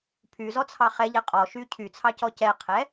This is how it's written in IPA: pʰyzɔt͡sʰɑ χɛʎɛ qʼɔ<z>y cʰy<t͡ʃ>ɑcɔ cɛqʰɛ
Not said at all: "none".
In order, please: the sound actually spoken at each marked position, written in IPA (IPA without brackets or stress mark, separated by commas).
ʃ, t͡sʰ